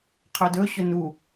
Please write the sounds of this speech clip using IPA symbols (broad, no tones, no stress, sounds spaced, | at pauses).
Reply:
qʰ œ d ɵ ɕ ɵ n u